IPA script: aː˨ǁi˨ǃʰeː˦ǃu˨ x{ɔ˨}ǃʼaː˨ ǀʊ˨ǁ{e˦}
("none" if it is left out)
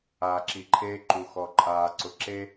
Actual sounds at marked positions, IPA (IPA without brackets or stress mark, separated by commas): ɔ˨, e˦